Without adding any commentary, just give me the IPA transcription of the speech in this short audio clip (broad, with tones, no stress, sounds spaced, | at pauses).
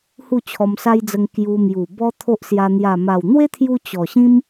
h u˥˧ t͡ɕʰ ɔ˧ m s a˦ j d͡z ə˧ ŋ k j u˧ m j u˨˩ b ɔ˦ t̪ʰ o˦ ʔ s j a˧ n̪ j a˨˩ m a˨˩ w n̪ w e˦ t̪ʰ j u˧ t͡ɕ ɔ˨˩ ɕ ĩ˦ m